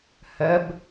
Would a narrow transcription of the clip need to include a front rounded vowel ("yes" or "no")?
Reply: no